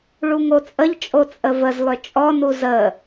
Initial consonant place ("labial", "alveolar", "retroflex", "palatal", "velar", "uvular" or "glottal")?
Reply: retroflex